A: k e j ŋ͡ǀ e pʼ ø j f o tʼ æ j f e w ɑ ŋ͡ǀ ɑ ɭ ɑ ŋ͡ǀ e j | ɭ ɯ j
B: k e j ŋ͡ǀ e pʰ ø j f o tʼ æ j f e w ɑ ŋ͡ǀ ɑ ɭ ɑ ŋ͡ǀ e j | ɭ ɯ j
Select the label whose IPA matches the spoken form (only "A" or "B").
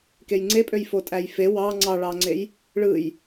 A